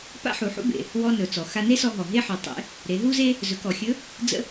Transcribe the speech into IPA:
p a̰˥ ħ u˩˧ ħ ṵ˥ b ḛ˩ | w ɔ˧ n ɵ˩ t͡s ɔ˩ x a˧ n e˥ s ɔ˧ ɦ ɔ˩ ɦ e˥ ħ ɵ˩˧ tˤ ḛ˧˥ | ɾ e˩˧ ɦ u˥ z e˥ | z ɵ˩˧ k ɔ˩ xʲ ɵ˧˥ | d͡z ə̰˥

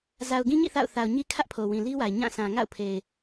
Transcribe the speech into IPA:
z a˨ ʊ̯ ɡ ĩ˦ ɲ ḭ˦˨ θ a̰˦˨ ʊ̯ θ a˨ ʊ̯ ɲ i˦ kʰ ä˦ ʔ pʰ o˨ w ĩ˨ l i˦ w a˨ ɪ̯ ɲ ã˦˨ s ã˨ ŋ a̰˦˨ ʊ̯ pʰ e˨ ɪ̯

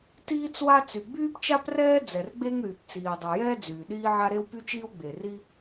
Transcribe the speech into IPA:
t iː˥ t͡s w a˥ t͡s y˩ ɡ͡b yː˥ p t͡ʃ a˥ p r ɛː˥ d͡z ɛ˩ r ɡ͡b e˥ ŋ ɾ yː˩ p t͡s iː˩ dˤ a˩ j ɛː˥ d͡z yː˩ ɗ iː˥ ʕ a˥ ɾ e˥ w p y˥ t͡ʃ iː˥ w ɡ͡b e˩ r i˥

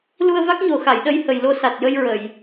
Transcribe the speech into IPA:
l u˧ ə̯ v a˦˥ k̚ ɲ o˨˩ x a˨˩˨ j ɗ ə˧ j h ə˨˩ j l o˧ s a˨˩ t̚ j ə˧ j ɹ ə˨˩˨ j

